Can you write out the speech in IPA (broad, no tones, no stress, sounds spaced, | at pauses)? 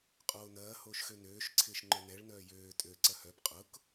qʼ oː n ɐː h oː ʃ x ø n øː ʃ ǀʰ ɪː ʃ ŋ͡ǃ œ n ɛ ɭ n œː j øː tʼ ø ǀ ɐ h œ b qʼ ʊ k